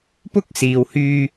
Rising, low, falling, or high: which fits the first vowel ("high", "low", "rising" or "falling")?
high